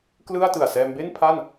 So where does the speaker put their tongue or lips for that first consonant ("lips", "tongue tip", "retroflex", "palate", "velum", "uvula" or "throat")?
velum